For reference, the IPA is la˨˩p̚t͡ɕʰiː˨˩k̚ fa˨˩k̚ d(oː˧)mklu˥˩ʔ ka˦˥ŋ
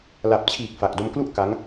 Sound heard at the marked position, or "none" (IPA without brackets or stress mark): o˧